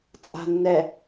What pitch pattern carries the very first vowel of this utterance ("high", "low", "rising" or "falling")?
low